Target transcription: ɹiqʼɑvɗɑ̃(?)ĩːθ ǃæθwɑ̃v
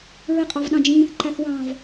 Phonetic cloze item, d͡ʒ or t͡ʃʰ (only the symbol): d͡ʒ